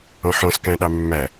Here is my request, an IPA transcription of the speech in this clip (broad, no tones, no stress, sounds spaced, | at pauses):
ɔ̃ ħ ɔ̃ s k æ̃ ɗ ɑ mː æ